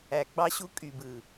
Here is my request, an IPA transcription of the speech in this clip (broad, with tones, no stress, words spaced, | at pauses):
æ˨ɡ͡bɑ˦ɕu˦ kʼy˨bɯ˨